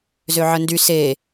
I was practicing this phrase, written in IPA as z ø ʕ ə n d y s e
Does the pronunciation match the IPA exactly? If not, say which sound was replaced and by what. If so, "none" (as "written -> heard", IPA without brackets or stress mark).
none